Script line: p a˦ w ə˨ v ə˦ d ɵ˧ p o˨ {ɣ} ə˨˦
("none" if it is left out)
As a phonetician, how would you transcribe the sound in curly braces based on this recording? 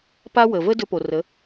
r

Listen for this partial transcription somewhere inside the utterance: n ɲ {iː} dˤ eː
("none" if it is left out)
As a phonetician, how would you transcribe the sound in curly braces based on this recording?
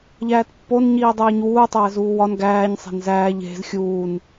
iː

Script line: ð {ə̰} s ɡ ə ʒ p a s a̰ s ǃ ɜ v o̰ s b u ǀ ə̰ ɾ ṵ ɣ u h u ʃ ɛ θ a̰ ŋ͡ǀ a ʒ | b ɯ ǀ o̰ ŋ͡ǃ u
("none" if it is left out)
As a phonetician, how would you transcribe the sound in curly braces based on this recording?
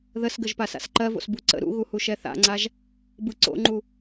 ə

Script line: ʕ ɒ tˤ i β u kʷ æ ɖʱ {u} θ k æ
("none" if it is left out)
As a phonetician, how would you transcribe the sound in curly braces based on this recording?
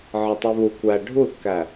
u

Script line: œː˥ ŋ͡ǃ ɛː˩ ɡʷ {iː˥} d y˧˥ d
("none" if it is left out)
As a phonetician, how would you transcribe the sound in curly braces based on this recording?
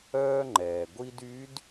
i˥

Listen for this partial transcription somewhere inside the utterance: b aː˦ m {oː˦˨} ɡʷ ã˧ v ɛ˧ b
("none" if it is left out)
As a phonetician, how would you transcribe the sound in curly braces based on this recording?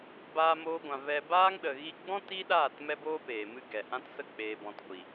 oː˦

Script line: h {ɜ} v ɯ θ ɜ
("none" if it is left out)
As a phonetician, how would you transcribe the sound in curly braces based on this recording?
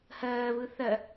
ɜː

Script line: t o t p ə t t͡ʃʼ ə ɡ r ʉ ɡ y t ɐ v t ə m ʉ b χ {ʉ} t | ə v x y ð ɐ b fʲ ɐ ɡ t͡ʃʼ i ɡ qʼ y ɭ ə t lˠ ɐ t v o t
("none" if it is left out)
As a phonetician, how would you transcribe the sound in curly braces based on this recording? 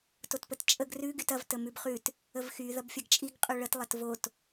ʉ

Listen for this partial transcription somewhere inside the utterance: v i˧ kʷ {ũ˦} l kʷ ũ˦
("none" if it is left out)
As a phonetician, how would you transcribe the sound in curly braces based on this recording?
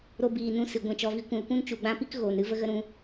ũ˨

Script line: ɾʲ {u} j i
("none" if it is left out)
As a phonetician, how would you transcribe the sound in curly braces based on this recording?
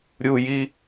u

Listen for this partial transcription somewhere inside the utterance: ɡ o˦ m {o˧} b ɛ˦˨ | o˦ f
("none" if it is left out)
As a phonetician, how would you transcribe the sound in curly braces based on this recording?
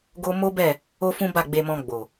o˦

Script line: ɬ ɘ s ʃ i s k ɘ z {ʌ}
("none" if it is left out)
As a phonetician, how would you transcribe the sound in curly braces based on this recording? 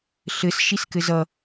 ʌ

